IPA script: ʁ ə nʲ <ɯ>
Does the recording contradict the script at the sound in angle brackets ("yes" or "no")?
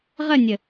yes